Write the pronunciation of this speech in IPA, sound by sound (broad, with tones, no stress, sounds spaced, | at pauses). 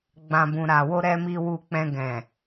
ɡ͡b ã˨ b ũ˨ ɾ a˨ w o˧ ɾ ɛ˧ m i˧ w u˧ k͡p ɛ̃˧ ɡ ɛ̃˨